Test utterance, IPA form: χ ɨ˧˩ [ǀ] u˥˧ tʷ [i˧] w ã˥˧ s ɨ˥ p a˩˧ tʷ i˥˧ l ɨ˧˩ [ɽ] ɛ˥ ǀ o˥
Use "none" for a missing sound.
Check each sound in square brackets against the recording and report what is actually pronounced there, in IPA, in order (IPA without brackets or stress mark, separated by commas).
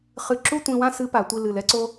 ǁ, ĩ˧, l